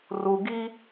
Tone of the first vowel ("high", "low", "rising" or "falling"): low